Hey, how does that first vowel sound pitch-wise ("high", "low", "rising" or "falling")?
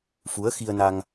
rising